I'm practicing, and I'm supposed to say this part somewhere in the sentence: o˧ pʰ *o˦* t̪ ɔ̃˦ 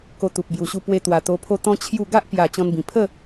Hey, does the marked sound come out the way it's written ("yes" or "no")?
yes